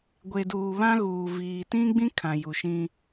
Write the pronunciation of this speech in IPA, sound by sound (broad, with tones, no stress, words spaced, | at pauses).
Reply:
ɡʷe˨duː˨ βã˦ɣuː˨ viː˨tĩ˦ɡ͡bĩ˦ kʰã˨ju˨ʃĩ˦